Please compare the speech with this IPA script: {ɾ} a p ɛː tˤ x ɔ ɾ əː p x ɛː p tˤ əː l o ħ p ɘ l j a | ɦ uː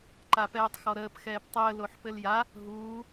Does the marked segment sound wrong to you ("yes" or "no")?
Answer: yes